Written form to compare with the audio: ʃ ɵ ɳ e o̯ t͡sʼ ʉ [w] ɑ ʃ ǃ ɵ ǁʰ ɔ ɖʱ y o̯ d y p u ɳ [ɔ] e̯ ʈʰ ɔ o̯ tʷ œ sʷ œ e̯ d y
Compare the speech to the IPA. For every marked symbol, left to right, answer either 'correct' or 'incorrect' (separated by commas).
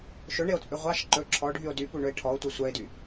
incorrect, incorrect